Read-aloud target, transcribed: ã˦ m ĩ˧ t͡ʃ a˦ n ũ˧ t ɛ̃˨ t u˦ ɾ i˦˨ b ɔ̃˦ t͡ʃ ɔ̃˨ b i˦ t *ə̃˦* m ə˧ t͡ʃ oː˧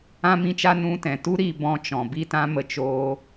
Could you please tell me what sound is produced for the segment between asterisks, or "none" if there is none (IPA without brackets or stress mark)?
ã˦